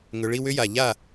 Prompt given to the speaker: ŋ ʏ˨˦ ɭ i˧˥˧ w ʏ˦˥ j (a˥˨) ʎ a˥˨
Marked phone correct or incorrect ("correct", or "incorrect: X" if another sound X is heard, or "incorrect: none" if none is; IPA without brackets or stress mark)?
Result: incorrect: a˨˩